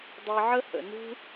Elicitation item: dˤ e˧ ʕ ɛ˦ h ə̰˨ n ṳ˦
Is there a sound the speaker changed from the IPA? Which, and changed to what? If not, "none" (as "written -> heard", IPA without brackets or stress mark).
ɛ˦ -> ə˦